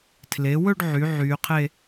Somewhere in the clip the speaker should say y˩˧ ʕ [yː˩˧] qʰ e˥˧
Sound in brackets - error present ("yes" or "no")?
no